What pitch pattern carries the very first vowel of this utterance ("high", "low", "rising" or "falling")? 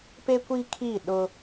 high